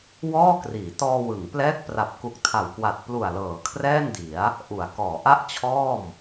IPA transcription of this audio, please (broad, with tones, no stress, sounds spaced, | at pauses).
w ɔː˥˩ k r iː˩˦ t ɔː˧ w ɯ˩˦ ŋ p l ɛː˦˥ k̚ p r a˨˩ p̚ k u˨˩ k̚ tʰ a˨˩ w k w a˨˩ t̚ p l u˨˩ a̯ l ɤː˩˦ kʰ r ɛː˥˩ n d i˩˦ a̯ | ʔ u˩˦ a̯ k ɔː˩˦ ʔ a˥˩ ʔ t͡ɕʰ ɔː˥˩ m